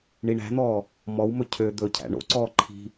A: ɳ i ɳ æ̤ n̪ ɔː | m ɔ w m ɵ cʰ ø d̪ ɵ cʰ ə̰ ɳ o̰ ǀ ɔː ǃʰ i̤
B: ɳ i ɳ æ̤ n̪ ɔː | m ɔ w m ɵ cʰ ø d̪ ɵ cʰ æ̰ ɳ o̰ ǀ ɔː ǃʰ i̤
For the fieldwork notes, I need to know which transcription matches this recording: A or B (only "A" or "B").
B